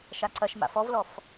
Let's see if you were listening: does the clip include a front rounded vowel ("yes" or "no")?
no